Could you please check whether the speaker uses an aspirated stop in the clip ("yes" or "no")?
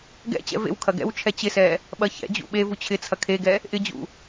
yes